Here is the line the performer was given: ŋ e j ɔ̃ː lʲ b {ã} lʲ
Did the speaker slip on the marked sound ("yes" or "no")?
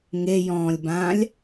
no